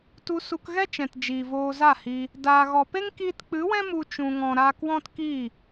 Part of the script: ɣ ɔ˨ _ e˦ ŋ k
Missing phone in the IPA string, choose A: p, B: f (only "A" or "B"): A